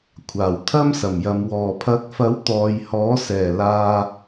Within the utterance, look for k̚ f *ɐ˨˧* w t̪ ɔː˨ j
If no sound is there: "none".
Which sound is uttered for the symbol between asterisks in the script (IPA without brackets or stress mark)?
ɐ˨˥